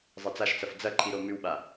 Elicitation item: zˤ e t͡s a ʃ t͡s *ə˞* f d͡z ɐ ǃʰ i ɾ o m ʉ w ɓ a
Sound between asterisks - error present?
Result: yes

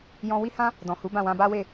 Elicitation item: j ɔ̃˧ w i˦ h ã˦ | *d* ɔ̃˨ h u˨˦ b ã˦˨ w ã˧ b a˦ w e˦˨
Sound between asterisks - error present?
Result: no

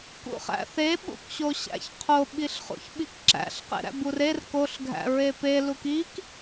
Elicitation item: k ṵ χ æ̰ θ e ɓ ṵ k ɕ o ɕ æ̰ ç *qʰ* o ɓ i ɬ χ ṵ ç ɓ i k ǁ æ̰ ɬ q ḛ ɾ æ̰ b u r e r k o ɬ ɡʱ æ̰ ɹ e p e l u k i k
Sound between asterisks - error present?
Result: no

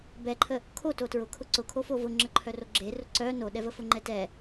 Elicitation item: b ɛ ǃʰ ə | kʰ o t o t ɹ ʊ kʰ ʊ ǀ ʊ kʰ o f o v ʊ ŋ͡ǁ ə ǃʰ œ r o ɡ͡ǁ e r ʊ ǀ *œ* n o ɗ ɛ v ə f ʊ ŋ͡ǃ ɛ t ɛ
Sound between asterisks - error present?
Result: no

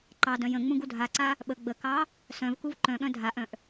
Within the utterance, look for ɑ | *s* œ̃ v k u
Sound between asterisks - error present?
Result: no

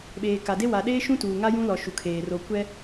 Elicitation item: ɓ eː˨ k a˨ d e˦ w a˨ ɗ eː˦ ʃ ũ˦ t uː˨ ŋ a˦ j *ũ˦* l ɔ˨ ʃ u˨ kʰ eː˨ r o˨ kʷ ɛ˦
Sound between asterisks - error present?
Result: no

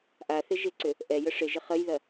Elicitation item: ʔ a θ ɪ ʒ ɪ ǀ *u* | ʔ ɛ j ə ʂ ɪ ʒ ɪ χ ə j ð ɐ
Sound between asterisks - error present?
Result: yes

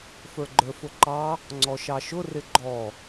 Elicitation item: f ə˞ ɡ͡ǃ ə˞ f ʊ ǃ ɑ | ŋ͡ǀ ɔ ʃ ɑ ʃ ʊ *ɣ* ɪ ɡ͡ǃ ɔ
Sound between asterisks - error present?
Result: yes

